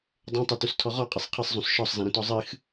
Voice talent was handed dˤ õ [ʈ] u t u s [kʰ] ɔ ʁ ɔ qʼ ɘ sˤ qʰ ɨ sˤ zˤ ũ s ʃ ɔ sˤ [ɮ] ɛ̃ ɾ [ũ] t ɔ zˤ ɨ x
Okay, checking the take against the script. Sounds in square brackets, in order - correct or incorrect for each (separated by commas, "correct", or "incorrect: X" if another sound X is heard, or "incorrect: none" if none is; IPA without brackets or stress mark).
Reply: incorrect: tˤ, incorrect: tʰ, incorrect: z, incorrect: õ